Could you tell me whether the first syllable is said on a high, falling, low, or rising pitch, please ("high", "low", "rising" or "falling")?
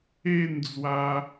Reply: falling